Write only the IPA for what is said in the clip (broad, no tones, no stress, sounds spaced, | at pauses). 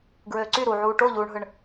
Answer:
ɡ ɹ øː ǀ y ɾ u ʕ uː ʈ o ʎ uː ɳ ɦ ɯ ɳ